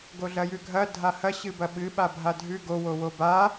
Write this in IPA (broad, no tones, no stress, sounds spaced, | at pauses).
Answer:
ɡ o ɮ ɐ j ʉ ɡʱ ɐ dʱ a h ɐ ɕ ɨ b ɐ ɓ ɨ ɓ a bʱ a dʱ ʉ ɡ o w o w o b a